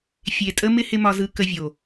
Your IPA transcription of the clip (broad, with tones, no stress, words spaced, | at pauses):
fʲe˨tʼə˦ mɪ˦ hɪ˦ mɒ˧zɯ˧ kə˧vʲo˨